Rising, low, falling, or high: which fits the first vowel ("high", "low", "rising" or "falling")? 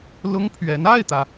high